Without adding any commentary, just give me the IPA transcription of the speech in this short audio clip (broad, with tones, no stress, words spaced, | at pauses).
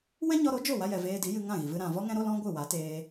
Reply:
wɛ̃˦ɲɔ˧ɾo˨˦ d͡ʒo˦˨wa˧jɛ˨ veː˧di˨˦jɨ˧ ŋã˦˨ɣi˨vɨ˧ ɾã˨vɔ˦ŋɛ̃˦ ɾo˦lɔ̃˦ ɡʷɨ˦˨wa˨˦teː˧